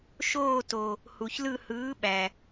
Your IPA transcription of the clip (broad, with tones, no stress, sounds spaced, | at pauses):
ʃ oː˦˨ t o˩ | h u˩ ç l ɯ˦˨ h ɯː˨˥ ɓ æ˩